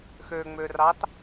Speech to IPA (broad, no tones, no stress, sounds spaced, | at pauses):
x ø ŋ͡m ø r ɑ t